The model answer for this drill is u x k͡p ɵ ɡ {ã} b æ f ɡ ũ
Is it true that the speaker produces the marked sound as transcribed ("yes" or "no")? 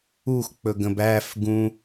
no